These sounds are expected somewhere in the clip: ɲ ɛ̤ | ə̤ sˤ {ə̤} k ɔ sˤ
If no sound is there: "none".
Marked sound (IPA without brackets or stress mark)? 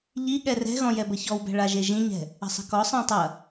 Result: ə̤